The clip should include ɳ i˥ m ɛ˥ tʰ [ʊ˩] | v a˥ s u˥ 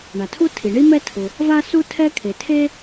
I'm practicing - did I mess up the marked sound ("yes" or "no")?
no